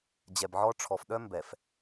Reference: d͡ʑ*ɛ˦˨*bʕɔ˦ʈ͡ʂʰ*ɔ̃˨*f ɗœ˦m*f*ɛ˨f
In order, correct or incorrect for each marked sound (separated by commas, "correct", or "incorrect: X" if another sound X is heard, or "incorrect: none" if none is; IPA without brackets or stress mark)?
incorrect: ɛ˨, incorrect: ɔ˨, incorrect: b